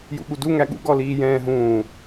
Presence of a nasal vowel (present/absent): present